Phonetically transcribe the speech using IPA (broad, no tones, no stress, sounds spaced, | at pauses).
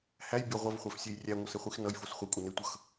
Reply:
h æ j bʲ ʌ ʁʷ ʌ v χʷ æ f sʲ e j rʲ æ ŋʷ ʌ s e χʷ i x n ʌ j f o s χʷ ʌ kʷʼ ʌ n e tʷ ʌ x